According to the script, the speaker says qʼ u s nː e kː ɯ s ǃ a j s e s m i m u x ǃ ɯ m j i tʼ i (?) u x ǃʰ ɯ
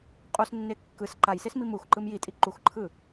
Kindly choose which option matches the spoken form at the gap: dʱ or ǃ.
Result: ǃ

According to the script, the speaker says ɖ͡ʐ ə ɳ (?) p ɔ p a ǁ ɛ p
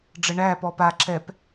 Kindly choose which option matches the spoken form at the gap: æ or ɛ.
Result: æ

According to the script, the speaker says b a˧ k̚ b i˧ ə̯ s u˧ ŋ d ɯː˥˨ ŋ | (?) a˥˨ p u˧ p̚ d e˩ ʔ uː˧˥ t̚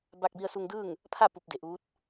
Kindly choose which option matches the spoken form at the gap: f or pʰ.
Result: pʰ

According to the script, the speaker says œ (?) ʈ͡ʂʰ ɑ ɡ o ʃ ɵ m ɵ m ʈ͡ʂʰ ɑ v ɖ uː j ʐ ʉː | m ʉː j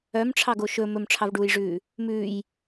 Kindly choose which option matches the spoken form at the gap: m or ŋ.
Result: m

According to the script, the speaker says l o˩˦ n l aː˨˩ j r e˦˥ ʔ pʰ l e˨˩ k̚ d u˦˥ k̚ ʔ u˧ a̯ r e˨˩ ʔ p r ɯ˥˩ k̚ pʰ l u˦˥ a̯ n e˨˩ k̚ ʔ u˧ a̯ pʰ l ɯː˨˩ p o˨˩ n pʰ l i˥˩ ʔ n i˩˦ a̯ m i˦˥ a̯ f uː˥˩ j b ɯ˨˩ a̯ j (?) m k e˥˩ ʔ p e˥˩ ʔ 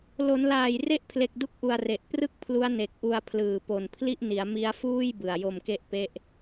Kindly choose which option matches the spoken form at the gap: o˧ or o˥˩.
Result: o˧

